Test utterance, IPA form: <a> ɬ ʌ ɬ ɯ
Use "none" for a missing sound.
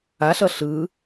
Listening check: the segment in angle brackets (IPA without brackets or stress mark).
a